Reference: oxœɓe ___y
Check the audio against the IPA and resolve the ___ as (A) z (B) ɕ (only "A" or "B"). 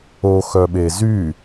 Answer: A